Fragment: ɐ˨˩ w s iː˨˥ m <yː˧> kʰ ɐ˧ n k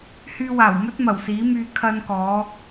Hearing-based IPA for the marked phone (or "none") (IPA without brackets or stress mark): yː˧